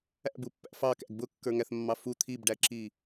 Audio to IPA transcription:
æ̰ b u pː æ̰ f ɑ k æ̰ ɡ b ʊ kː ə˞ ŋ æ θ mː ɑ f u t̪ʰ i b ɖ æ ǁ i

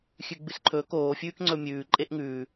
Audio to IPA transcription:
xʲ ʉ ɡ͡b ɨ s ǃʰ ɵː k oː fʲ ʉː k ŋ͡ǀ ɵ mʲ ʉː ǃʼ e ʔ ŋ ʉː

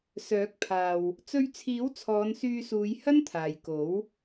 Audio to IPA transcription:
s œː˨˥ k̚ pʰ aː˨ w | t͡s ɵ˧ ɥ t͡sʰ iː˨˥ w t͡sʰ ɔː˨˧ n s yː˧ s uː˨˧ j h ɐ˥ n t̪ʰ aː˨ j k o˨˥ w

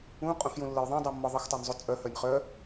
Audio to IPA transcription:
ũ qʼ ũ x j ũ lː ə j ðˤ ũ dˤ u mː ɔ ðˤ ə x tˤ œ n zˤ u t͡sʼ œ h œ nʲ χ œ

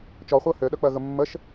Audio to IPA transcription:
t͡ʃ ɔ χʷ ɜ h ø ɗ œ k͡p ɜ ɣ ə mː ə ʃ

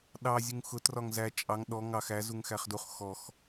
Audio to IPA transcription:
ɗ ɑ zʲ u ŋ x ʊ t r ɒ ŋ z æ t͡ʃʼ ɑ ŋ ɗ ɔ ŋ ɑ x æ z u ŋ x æ χ d u χ x ɔ x

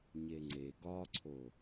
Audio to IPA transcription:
ɲ e ŋ͡ǀ e ɡ ɒ ǀʰ o

